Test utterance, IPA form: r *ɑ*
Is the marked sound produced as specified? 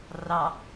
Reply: yes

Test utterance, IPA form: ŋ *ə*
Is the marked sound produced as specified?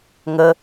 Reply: yes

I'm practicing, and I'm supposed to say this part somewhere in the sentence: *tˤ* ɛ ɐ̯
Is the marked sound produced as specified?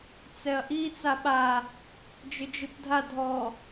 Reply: no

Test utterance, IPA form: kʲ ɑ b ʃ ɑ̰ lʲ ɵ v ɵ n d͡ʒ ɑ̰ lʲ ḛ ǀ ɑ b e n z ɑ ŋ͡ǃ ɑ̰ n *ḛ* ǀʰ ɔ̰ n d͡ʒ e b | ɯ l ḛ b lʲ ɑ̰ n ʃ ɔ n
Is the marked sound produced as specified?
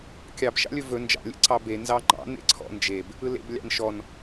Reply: yes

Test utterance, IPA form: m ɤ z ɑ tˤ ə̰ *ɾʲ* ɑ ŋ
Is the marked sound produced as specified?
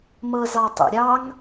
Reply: yes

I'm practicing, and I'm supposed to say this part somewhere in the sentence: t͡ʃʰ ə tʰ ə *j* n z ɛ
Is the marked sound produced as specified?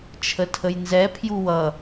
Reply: yes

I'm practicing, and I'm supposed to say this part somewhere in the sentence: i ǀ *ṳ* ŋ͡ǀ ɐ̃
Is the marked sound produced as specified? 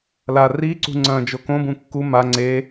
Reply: yes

